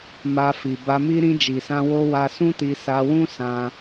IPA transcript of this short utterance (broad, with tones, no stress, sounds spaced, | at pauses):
m a˧ f i˨ b a˧ m i˦ ɾ ĩ˧ d͡ʒ i˨ s ã˧ w o˧ w a˧ s ũ˦ t i˧ s a˧ w ũ˦ s ã˧